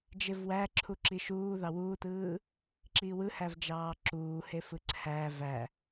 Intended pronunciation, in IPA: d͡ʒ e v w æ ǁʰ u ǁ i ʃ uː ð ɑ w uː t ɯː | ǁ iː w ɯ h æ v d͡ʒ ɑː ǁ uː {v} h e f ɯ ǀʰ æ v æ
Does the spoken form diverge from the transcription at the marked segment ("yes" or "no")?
yes